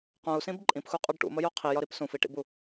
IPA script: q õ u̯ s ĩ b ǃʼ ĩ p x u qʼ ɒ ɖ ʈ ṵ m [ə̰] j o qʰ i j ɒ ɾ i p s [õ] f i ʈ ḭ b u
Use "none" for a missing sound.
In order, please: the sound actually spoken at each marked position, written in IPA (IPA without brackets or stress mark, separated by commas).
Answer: ə, ũ